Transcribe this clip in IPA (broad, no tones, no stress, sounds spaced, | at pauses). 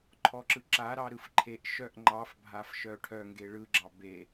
ǃʰ ɔ ǁ ɯ ǁ a ɾ ɑ ɾ ɯ f ǃʰ e ʔ ʃ œ ʔ ŋ͡ǃ ɑ f bʱ a f ʃ œ ʈʰ œ ŋ ɡ e ɭ ɯ ɡ͡ǁ ɑ b e